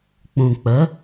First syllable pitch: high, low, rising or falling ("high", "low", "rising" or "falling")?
low